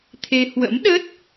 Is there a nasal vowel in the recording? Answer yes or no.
no